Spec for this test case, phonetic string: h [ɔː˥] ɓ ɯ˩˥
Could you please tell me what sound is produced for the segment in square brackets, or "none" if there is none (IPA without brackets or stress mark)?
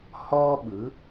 ɔː˥